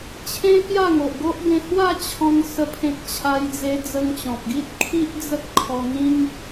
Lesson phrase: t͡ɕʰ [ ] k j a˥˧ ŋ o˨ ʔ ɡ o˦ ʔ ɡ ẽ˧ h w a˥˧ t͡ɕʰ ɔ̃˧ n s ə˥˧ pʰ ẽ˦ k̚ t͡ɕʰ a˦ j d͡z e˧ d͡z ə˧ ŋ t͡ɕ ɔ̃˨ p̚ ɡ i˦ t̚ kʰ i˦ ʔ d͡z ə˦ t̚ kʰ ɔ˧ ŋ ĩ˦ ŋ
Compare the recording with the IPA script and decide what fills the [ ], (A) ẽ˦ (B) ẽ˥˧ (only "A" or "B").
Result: A